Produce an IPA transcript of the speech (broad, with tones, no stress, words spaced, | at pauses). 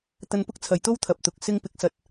t̪ɐ˧npʊ˥k̚t͡sʰɐ˨jt̪o˥w t̪ʰɐ˨p̚t̪ʊ˨k̚ sɪ˧ŋpɪ˨˥k̚sɐ˨˥t̚